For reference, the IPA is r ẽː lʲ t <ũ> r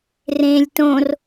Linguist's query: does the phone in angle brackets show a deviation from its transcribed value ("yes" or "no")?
yes